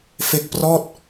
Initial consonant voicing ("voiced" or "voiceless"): voiceless